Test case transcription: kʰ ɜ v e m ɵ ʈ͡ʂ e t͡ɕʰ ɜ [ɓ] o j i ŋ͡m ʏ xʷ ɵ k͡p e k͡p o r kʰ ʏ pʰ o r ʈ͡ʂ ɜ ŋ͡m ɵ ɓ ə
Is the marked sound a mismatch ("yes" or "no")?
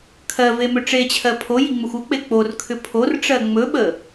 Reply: yes